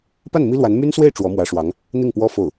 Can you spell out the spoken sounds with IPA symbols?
p a˥˩ n m i˥ l w a˧˥ n m y˥ n s w e˥˩ ɪ̯ ʈ͡ʂ w ɔ˧˥ m w ä˧˥ ʂ w ɑ˧˥ ŋ | n̪ i˥˩ ŋ p w ɔ˥ f o˥˩ ʊ̯

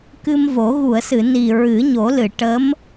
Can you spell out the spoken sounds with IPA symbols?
k ɨ˧ m v o˨˩˦ ɣ u˨˩˨ ə̯ s ɨ˨˩˨ n i˨˩ ɹ ɨ˨˩˦ ɲ o˨˩˦ l ɨ˨˩˨ ʈ ə˧˥ m

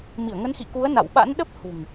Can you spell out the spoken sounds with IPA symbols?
m i˧˩ ə̯ ŋ ə˨˦ n x ḭ˧˨ k u˨˦ ə̯ n a̰˧˨ w ɓ a̰˧˥ n ɗ ə˦˥ p̚ h ṳ˨˩ ŋ

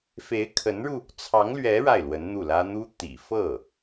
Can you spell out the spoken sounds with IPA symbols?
f e˧˥ ɪ̯ kʰ ə˧˥ n ɻ u˧ | t͡sʰ ɑ˧˥ ŋ l ɥ ɛ˧˥ ɻ a˥˩ ɪ̯ l w ə˧˥ n n̪ u˥˩ l ä˥ n̪ u˥ t̪ ḭ˨˩ f ɤ˥˩

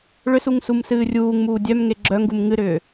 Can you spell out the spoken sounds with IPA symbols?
ɭ ʏ s u ŋ s u m s ɨː rʲ uː ŋ m uː dʲ œ m ŋ e ɡ͡ǁ œ ŋ ɡ u m ŋ ɨ ɾ ʏː

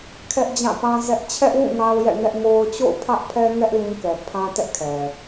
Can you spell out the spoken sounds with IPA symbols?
kʰ ɛ˦ ʔ d͡ʑ ã˦˨ p ã˦ z ɛ˦ ʔ t͡ɕʰ ɛ˦ ʔ w ũ˦˨ ŋ a˦ ʊ̯ j ɛ̰˦˨ ŋ ɛ˦ ʔ ŋ o˦ ʊ̯ t͡ɕ o̰˦˨ ʊ̯ pʰ ä˦ ʔ pʰ ɛ˦ ŋ ɛ˦ ʔ l ĩ˦ k ɛ˨ pʰ ã˦ t ɛ˦ ʔ kʰ ɛ˨

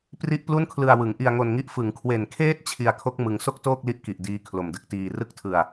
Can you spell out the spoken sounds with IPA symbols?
p r i˥˩ ʔ p l u˥˩ n kʰ l ɯ˧ a̯ w ɯ˩˦ ŋ ʔ i˧ a̯ ŋ o˧ n ŋ i˦˥ ʔ f ɯ˩˦ ŋ kʰ w e˨˩ n kʰ eː˦˥ t̚ t͡ɕʰ i˧ a̯ kʰ o˦˥ k̚ m ɯ˧ ŋ s o˥˩ k̚ t oː˥˩ k̚ l i˦˥ ʔ k i˨˩ ʔ d iː˦˥ kʰ l o˨˩ m d ɯ˦˥ k̚ t iː˧ r ɯ˥˩ k̚ tʰ ɯ˧ a̯

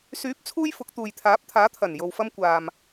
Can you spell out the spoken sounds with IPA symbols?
s yː˨˥ p̚ t͡sʰ uː˥ j f ʊ˨˥ k̚ t̪ uː˨ j t̪ʰ aː˨˥ p̚ t̪ʰ aː˨˥ t̪ʰ ɐ˨˩ n j o˨ w f ɐ˧ m kʷ aː˨ m

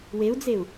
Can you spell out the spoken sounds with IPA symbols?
w e u̯ d͡z e u̯

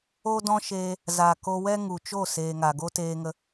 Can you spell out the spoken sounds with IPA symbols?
o˦ d ɔ̃˦ ʃ eː˧ | z a˨ k o˧ w ɛ˦ ŋ u˨ t͡ʃ o˦˨ s eː˨ ŋ a˨ ɡ o˦ t eː˧ ŋ ə˧

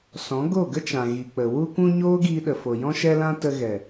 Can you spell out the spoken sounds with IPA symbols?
s ɔ̃˨˦ ɡ o˦˨ ɡ ə˦ t͡ʃ ã˨ ɣ i˨ k͡p ə˨ w u˧ kʷ ũ˧ ɲ oː˦ ɡ iː˧ ɗ ə˨ f o˨ j ɔ̃˧ ʃ ɛ˧ l ã˧ t ə˧ ɣ ɛ˨

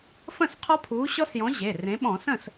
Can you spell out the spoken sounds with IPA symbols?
f ə̃˥˩ s qʰ ɔ˦˥ pʰ uː˨˥ ɕ ɔ˦˥ s j ɔ̃˨˥ ʑ e˩˧˩ r ẽ˨˥ ɓ ɔ̃˧˩˧ s ə̃˥˩ s

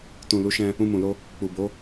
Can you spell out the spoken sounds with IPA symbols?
t ũ˨ l u˨˦ ʃ ɛ̃˧ | ũ˧ m ũ˨ l o˧ | k͡p u˨ b o˨˦

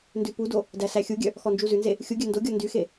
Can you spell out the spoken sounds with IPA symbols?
n d ʉ p u d o | d æ s æ xʲ u ɡʲ œ | x ɔ n d͡ʒ u z ʉ n z e | xʲ u ɡʲ œ n d o ɡʲ ɔ n d y x e

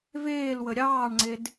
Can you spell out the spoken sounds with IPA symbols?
v eː l w ə ɾʲ ɑː ɳ ŋ͡ǀ e d

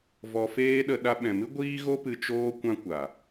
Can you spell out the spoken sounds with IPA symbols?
v ɔ˧ f eː˦ ɗ ə˧ ɗ a˧ ɓ ɛ̃˨ m ɨ˦ ɡʷ iː˦ ɣ o˦ p ɨ˧ t͡ʃ oː˧ kʷ ã˦ kʷ a˨

